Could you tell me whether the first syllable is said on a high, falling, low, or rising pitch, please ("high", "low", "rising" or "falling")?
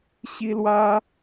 high